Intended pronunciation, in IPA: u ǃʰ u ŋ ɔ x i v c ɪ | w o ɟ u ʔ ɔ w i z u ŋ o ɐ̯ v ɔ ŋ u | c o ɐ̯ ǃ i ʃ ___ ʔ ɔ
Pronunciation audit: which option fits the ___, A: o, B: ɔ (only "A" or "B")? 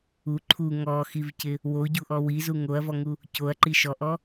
B